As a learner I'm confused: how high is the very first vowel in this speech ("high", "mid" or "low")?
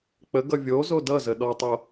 mid